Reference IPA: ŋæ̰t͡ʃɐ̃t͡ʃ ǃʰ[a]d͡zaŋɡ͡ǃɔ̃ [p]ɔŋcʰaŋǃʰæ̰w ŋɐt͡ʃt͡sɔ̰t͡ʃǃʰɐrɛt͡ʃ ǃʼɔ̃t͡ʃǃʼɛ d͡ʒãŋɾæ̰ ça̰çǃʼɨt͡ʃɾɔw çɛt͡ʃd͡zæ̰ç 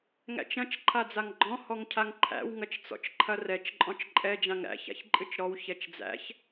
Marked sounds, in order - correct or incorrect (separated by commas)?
correct, incorrect